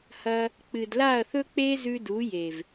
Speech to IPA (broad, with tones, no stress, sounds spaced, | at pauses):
h ɐ˧ | k͡p ɨ˨ d l a˦˨ ɐ̯ θ ɵ˦ k͡p e˦ z ʉ˧ d u˨˦ j e˨ v